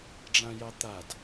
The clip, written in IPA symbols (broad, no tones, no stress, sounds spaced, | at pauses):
ɖ͡ʐ ã j ɑ t̪ a d